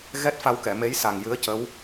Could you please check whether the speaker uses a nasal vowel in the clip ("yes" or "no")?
no